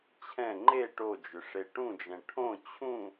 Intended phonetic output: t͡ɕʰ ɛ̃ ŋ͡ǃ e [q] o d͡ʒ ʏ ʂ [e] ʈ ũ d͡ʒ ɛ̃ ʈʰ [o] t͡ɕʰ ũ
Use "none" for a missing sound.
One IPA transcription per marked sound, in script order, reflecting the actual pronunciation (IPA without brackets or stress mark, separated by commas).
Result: ʈ, e, õ